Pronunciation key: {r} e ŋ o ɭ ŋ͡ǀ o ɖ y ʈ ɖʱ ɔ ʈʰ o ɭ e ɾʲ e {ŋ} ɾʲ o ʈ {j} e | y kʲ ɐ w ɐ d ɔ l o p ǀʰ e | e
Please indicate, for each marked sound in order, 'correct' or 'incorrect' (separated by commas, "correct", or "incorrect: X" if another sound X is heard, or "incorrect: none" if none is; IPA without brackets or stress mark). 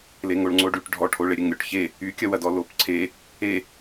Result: incorrect: l, correct, incorrect: ç